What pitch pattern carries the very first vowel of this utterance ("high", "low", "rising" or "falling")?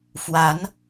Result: rising